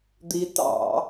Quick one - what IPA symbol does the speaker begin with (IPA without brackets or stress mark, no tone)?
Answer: d̪